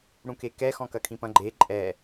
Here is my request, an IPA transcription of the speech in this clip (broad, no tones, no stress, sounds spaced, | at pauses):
ɽ ũ k e k ɛ x ɔ̃ k ɐ kʰ ĩ p ɐ̃ ɡ͡ǃ e ǃʼ ɛ